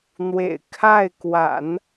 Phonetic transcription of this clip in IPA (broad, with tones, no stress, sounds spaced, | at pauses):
n̪ w ḛ˨˩ ɪ̯ kʰ a˥˩ ɪ̯ k w a̰˨˩˦ n